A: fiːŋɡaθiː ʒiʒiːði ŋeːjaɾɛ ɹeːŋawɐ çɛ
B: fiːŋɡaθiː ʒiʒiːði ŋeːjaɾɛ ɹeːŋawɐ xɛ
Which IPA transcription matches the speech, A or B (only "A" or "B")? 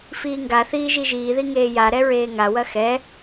B